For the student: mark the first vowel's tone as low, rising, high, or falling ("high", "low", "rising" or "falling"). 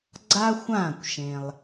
high